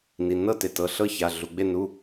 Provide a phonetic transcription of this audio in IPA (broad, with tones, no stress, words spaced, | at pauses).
ni˩˧˩nɤ˥˩te˩˧˩tɤ˩˧˩ ɬɤ˥˩ça˩˧˩ɮu˩˧˩ɡ͡be˥˩ nu˩˧˩